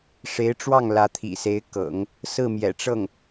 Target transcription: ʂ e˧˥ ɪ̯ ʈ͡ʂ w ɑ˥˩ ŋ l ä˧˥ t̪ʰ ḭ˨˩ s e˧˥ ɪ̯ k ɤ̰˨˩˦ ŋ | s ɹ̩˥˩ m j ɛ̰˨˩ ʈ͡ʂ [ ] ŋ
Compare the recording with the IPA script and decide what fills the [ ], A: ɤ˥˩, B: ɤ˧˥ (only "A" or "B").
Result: A